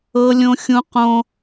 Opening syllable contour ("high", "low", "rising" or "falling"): high